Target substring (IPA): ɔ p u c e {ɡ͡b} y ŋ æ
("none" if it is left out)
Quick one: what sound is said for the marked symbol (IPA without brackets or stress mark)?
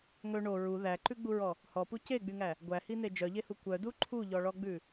ɡ͡b